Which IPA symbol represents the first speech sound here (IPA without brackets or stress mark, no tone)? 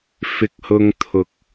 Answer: f